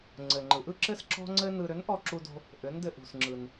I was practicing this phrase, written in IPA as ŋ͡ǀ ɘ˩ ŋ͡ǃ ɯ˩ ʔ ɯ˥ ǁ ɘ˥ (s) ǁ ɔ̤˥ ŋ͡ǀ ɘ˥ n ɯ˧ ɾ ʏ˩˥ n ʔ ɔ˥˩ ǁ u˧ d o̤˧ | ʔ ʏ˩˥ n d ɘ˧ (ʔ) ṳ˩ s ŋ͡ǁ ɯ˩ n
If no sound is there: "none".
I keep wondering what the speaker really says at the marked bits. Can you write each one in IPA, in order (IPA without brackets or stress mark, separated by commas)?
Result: s, ʔ